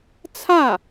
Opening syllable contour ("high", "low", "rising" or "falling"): falling